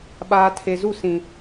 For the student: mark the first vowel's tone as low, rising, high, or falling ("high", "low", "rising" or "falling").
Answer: low